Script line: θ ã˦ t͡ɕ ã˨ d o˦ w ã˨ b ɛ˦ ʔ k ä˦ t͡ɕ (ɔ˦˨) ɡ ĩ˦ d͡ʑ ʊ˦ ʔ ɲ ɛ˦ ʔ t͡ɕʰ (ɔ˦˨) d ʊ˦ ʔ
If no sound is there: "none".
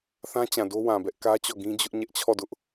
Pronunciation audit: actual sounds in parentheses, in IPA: ɔ˦˨, ɔ˦˨

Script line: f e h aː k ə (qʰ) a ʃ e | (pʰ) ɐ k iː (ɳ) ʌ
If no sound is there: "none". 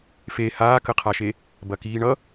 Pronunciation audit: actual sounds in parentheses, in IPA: qʰ, b, ɳ

